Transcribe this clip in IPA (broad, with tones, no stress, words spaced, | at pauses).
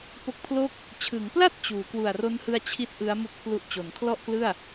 po˦˥k̚pʰlo˥˩k̚ | t͡ɕʰɯ˩˦ŋpla˥˩t̚ t͡ɕuː˩˦ kwu˨˩a̯ro˦˥nhɯ˧a̯ t͡ɕʰi˦˥t̚ ʔɯ˦˥a̯mu˦˥k̚pʰlu˦˥ʔ t͡ɕo˩˦nkʰlɔ˥˩ʔklɯ˥˩a̯